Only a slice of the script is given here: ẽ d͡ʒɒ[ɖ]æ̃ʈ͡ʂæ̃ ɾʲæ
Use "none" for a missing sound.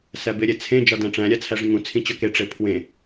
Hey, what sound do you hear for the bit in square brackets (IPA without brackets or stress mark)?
d